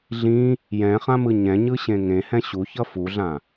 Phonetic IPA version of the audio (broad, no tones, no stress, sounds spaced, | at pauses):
ɮ ĩ | j ɛ̃ χ ã m ɯ ɲ ɛ̃ ɲ ɯ ɕ ẽ ŋ ẽ h ɛ̃ ɕ u ç ʌ f u ɮ ã